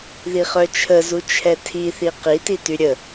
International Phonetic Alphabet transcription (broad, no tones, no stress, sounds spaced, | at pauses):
ð i χ œ t͡ʃʰ ə z u t͡ʃʰ ɛ tʰ i θ i q i t i t y ɾʲ ə